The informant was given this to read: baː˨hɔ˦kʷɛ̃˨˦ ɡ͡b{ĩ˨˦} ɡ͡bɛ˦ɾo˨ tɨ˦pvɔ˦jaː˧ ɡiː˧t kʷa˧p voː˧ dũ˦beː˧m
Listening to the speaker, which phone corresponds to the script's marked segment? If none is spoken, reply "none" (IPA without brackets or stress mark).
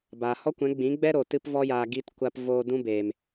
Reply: ĩ˨˦